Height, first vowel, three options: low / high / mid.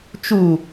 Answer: high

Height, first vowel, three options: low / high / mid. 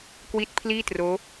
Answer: high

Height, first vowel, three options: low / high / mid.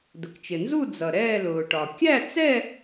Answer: high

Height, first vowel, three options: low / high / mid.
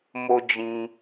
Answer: mid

